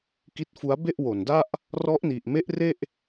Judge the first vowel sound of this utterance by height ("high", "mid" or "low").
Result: high